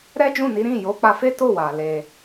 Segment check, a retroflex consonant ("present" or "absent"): absent